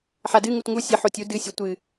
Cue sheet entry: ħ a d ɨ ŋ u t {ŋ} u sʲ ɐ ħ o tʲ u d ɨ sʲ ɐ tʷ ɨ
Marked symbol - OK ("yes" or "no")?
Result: yes